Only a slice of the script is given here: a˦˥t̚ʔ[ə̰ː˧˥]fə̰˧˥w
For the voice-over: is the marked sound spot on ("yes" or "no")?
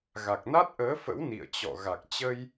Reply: no